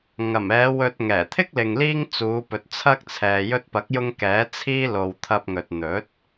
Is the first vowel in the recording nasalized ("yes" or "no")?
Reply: no